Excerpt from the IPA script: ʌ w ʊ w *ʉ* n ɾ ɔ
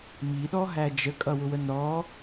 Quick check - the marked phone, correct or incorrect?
incorrect